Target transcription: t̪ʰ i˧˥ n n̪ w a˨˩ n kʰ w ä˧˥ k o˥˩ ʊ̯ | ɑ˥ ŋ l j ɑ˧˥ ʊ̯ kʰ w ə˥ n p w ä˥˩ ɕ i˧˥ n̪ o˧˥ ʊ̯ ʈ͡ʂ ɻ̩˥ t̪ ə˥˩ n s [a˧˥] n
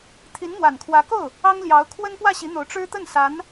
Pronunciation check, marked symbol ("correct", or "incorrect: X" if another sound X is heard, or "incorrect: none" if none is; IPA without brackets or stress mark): correct